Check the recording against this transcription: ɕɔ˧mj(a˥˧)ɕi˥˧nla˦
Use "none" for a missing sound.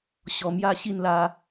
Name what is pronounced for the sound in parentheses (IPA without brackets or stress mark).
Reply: a˥˧